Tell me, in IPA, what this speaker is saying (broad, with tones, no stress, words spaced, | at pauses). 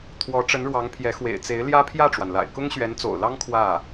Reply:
t̪ʰwɔ˧˥ʈ͡ʂə˧˥nɻwɑ˧˥ŋpʰjɛ˧˥ xwḛ˨˩ɪ̯ t͡se˧˥ɪ̯ljä˥ pʰjä˥˩ʈ͡ʂwa˩nla̰˨˩ɪ̯ kʊ˥ŋɕɥɛ˧˥nt͡so̰˨˩ʊ̯lɑ˥ŋ kʰwä˥˩